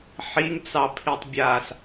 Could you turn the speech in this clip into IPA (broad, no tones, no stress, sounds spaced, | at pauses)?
ħ i ŋ t͡s ɑ pʰ i tˤ bʲ aː s